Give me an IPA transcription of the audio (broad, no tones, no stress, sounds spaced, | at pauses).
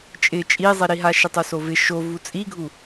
t͡ʃʼ ɪ t͡ʃʼ i zˤ i ɾ i ɦ a ʃ ɪ tˤ u s o v ɪ ʃ o v u t͡sʼ i ɡʱ u